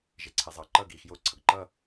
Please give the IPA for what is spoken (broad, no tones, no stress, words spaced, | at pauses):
ʒeǀʰezˤʌːǃʌːɡ iːxjo ǀʰʌɡǃʌ